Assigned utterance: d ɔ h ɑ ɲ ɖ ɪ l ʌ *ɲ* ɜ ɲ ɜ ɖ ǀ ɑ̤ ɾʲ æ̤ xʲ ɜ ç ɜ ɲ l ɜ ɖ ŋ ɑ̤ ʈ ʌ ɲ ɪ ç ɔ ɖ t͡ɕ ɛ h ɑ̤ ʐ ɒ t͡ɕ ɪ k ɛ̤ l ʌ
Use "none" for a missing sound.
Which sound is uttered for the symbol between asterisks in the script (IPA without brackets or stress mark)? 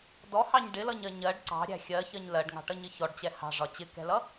ɲ